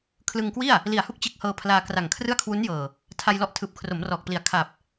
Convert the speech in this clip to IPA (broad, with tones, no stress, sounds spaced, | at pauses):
kʰ l ɯ˧ ŋ k w i˥˩ a̯ | l i˨˩ a̯ h u˥˩ k̚ t͡ɕ e˦˥ k̚ h ɤː˧ pʰ l aː˧ k r a˨˩ ŋ kʰ r ɯ˥˩ a̯ kʰ w u˦˥ n j ɤː˨˩ | tʰ a˧ j l ɔ˦˥ ʔ tʰ ɯː˨˩ p̚ kʰ r o˩˦ m r ɔː˨˩ k̚ p l i˨˩ a̯ kʰ a˨˩ p̚